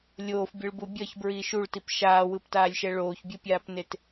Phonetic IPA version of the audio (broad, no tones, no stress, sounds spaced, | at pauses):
lʲ oː f bʲ ɯ ɭ b u bʲ ʌ ç b ɹ iː ʃ u ɭ t i p ʃ aː w ɯ p t aː lʲ ʃ ɛ ɭ oː ç bʲ ɯ pʲ aː p n e t